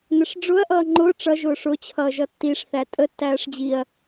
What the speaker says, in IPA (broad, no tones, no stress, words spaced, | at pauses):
nəʂɖ͡ʐʊɐ̯ ʔʌːŋ͡ǃʊː ʈ͡ʂʌ ʒʊːʂʊ t͡ɕʰʌːʒʌtːiʂ θætʼə tːæːʂd͡ʑiɐ̯